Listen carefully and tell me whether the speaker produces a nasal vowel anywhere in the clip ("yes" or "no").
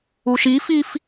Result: no